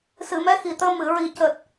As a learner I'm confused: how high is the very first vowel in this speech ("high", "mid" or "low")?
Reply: high